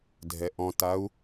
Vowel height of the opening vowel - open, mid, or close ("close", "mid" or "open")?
mid